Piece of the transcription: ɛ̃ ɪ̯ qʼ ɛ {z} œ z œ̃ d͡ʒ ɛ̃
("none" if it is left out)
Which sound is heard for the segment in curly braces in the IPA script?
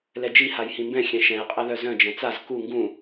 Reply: ð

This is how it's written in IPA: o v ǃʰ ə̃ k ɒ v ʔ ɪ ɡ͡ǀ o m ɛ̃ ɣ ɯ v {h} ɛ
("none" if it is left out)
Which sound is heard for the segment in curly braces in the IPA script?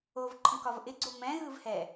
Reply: h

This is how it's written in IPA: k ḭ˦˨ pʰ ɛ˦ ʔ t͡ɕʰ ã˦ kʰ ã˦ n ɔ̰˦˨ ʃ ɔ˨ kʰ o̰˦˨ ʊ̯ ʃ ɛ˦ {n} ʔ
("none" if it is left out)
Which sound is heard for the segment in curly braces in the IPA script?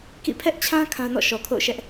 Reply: none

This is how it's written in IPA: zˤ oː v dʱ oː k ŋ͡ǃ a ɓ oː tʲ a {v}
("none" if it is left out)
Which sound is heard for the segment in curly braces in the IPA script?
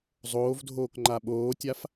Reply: f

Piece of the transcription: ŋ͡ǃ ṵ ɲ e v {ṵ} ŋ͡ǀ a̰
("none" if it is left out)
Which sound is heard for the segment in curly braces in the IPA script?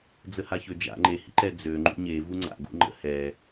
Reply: u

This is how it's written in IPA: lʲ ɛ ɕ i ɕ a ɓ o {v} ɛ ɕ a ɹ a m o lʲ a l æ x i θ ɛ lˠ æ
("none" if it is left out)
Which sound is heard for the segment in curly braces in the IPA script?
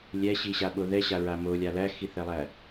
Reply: ð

